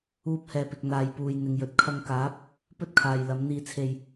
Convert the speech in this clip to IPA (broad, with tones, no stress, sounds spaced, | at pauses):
uː˧ p̚ h ɛː˨ p ɪ˨ k̚ n̪ aː˨ j p uː˨ j n̪ ɪ˨ ŋ j ɵ˨ t̚ kʰ ɐ˧ ŋ k aː˨˥ p̚ | p ɵ˥ t̚ kʰ aː˨ j l ɐ˨˧ m n̪ iː˧ t͡sʰ e˧ j